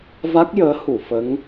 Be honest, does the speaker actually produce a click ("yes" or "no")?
no